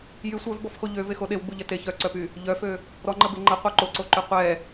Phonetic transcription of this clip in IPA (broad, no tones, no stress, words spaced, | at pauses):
jy sʷœvbɔfxo ʎøvexo ɗewɡ͡buʎɛ te çœǀœpy | ʎœfø | ɾɔŋ͡ǃəbe ŋ͡ǃəqʷœ ǃoǀoǃy qʷɛ